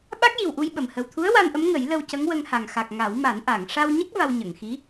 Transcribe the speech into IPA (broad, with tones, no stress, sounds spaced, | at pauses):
ɓ a˦˥ k̚ j i˨˩ w ʔ u˧ j ɓ ə˨˩ m h ə˨˩ w t̪ʰ u˧˥ ə̯ w a˧ n ʔ ə˧˥ m ŋ ə˨˩˦ j l ə˧ w c ə˧˥ ŋ w ə˧ ŋ h a˨˩ ŋ x a˨˩ k̚ ŋ a˨˩˦ w m a˨˩˦ n ʔ a˨˩˨ ŋ ʂ a˧ w ɲ ə˦˥ k̚ v a˧ w ɲ ə˨˩˨ ŋ x i˧˥